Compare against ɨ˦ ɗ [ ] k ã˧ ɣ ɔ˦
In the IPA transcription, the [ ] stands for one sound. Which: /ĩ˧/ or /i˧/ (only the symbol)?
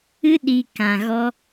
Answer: i˧